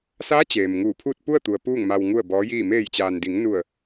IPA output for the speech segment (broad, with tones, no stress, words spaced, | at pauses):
sa˧˥ t͡ɕeː˩mŋuː˧˩ pʰuː˥˨t̚pu˥˨ə̯t̪u˩ə̯ puː˥˨ŋma˧w ŋu˥˨ə̯bɔː˧˥jiː˥˨ meː˧˩jt͡ɕaː˩ndi˩˧ŋ nu˧˩ə̯